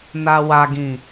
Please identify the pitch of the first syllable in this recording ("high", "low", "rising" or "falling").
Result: low